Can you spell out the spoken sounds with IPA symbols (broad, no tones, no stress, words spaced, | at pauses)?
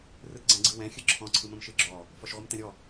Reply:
rɯtɡ͡ǀɛ̃ɡ͡ǀɯwɛ̃ xʲɯǁʰɔ̃ ǀʰɯmə̃mʃɯɡ͡ǁɔ | fɔʃʁʷɯmtɛ̃ɾʲɔ